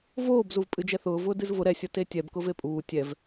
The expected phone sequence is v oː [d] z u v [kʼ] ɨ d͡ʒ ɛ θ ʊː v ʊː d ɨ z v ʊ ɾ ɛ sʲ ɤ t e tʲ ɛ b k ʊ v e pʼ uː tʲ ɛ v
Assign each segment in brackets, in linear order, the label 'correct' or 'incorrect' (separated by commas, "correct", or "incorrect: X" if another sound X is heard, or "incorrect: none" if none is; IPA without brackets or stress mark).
incorrect: b, incorrect: pʼ